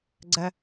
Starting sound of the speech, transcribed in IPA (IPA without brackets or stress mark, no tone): ɡ͡ǀ